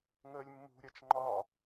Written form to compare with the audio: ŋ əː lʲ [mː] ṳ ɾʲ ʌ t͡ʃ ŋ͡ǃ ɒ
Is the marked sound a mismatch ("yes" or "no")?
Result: no